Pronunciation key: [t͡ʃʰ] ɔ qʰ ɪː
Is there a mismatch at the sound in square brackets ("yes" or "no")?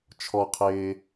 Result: no